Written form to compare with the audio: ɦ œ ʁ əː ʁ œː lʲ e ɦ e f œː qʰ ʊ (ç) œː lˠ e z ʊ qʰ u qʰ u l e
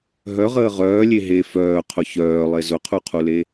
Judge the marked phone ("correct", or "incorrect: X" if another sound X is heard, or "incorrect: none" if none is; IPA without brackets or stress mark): correct